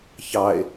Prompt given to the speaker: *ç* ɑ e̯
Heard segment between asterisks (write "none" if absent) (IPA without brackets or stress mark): ç